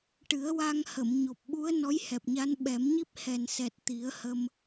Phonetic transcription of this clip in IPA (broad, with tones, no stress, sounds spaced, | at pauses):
ʈ ɨ˨˩˦ ə̯ w a˧ ŋ h ə˨˩˨ m ɲ o˨˩ p̚ ɓ u˧˥ ə̯ n ɔ˧˥ j h ɛ˨˩ p̚ ɲ a˧˥ n ɓ ɛ˨˩˦ m ɲ i˦˥ p̚ h ɛ˨˩ n s ɛ˨˩ t̚ t̪ i˨˩˦ ə̯ h ə˧ m